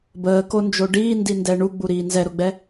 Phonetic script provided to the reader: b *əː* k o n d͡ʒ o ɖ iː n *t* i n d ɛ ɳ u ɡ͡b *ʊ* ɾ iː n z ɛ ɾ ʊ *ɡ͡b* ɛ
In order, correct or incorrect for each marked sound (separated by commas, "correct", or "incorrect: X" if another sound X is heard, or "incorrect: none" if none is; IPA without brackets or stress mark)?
correct, incorrect: d, incorrect: u, correct